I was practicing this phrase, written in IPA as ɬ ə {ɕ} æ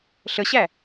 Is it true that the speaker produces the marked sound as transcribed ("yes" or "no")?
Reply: yes